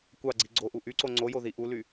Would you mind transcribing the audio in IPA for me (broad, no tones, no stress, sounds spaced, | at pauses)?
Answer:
kʷ ɑ ɡ͡ǀ i ɡ͡ǀ o ʔ u ʔ y ǀ o ŋ͡ǀ o j o ð i ʔ u l y